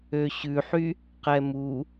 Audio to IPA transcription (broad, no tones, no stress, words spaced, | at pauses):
øɕʉħy | qɛmu